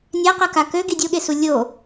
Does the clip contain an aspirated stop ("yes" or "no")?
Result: no